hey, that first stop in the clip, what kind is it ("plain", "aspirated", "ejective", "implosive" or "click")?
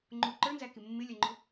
click